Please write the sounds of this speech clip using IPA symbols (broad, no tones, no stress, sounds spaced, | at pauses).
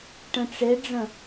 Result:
ʈ ə̃ ʈ͡ʂ e ɖ͡ʐ ə̃